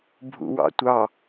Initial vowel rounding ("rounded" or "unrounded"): rounded